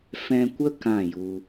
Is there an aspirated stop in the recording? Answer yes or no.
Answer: no